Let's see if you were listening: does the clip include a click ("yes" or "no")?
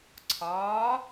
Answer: yes